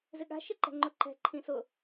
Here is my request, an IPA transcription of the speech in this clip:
zɪɠa̤ ʃɪǃɛ̤ŋ͡ǃʊǃɛ̤ ǃʰĩsʊ

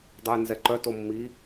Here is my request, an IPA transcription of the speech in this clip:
dˤujnzɛǃœ tomːi

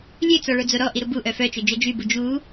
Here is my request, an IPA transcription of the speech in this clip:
lʲøt͡sɔɭod͡zo ɾɔʔiɾu buʔœ fœt͡ʃød͡ʒœ d͡ʒybu d͡ʒu

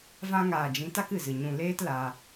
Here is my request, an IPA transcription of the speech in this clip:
vã˧ŋaː˨d͡ʒĩ˨˦ ta˦kɨ˨zɨ˨ ɲũ˨ leː˦tla˧

